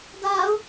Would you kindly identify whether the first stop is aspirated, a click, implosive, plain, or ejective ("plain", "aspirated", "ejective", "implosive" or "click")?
plain